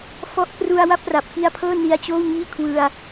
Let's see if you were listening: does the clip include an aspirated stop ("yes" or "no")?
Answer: yes